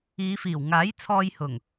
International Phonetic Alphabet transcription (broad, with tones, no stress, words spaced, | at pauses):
iː˨˧fiː˨˩wŋaː˨˥j t͡sʰɔː˧jhʊ˨˩ŋ